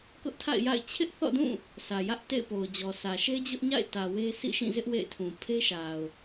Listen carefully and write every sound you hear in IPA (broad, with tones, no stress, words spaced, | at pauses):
kʊ˦ʔtʰa̰˦˨ɪ̯ja̰˦˨ɪ̯ t͡ɕʰɪ˦ʔθɔ̰˦˨dũ˦˨ | sä˨jä˦ʔ tḛ˦˨ɪ̯po˨ʊ̯d͡ʑɔ˨sä˨ ʃe˦d͡ʑʊ˦ʔɲa̰˦˨ɪ̯ tä˨we˦ sḭ˦˨ʃĩ˦˨zɪ˦ʔ wḛ˦˨ɪ̯tʰũ˨ pʰe˦ʃa˨ʊ̯